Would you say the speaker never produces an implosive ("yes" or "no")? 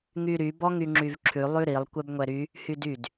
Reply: yes